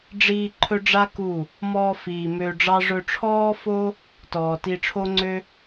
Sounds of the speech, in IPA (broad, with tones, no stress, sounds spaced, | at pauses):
ɖ͡ʐ iː˧ ǃʰ ɵ˦ ɖ͡ʐ a˦ k u˦˨ | m ɔ˧ f iː˨ m ø˧ ɖ͡ʐ ɑ˦ ʐ ɵ˧ ʈ͡ʂʰ ɔː˦ f o˦ | t ɔː˨ t i˧ ʈ͡ʂʰ o˦ ŋ͡ǀ ø˦